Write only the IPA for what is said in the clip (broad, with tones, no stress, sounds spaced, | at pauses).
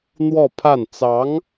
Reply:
n̪ w ɔ˥˧ pʰ a˥˩ n t͡s ɑ˧˥ ŋ